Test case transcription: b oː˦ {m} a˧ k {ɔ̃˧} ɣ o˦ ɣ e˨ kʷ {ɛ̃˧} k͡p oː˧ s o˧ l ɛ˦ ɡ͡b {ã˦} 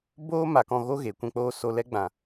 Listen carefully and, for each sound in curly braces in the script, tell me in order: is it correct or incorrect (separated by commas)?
correct, correct, correct, incorrect